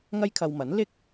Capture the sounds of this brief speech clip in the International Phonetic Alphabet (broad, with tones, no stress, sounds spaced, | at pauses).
ŋ ɐ˥ j kʰ ɐ˧ w m ɐ˨˥ n l ɪ˥ k̚